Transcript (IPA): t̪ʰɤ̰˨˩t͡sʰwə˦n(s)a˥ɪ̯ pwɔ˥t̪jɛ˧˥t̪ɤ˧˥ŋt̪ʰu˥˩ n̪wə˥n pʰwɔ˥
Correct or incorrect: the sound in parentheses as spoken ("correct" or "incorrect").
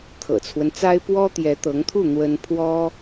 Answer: incorrect